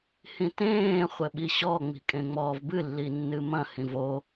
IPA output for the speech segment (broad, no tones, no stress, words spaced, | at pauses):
hĩtẽː χʷɘɓiɕɔ ŋ͡mi̤kʼẽŋ͡mɔːvbɨ lːinːɨmɐ̃ hĩvo